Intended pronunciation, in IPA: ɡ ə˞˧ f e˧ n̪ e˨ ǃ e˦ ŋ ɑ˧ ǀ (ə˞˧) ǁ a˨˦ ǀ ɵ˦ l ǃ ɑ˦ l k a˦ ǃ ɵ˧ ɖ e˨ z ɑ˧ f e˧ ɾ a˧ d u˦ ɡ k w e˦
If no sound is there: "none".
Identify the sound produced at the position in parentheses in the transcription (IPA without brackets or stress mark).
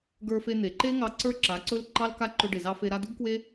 ə˞˦